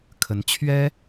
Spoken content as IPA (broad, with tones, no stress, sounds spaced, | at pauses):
kʰ ə˧˥ n t͡ɕʰ ɥ ɛ˥